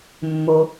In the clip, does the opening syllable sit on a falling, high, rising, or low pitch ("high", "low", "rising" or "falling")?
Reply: low